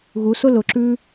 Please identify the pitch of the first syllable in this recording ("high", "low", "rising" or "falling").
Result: rising